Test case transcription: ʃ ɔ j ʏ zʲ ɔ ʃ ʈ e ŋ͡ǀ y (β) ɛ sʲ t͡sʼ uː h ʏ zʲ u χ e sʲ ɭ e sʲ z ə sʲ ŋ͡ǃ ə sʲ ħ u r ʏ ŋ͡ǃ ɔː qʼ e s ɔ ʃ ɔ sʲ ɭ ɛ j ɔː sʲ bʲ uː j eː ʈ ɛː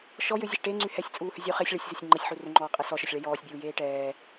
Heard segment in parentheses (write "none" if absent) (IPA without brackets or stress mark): h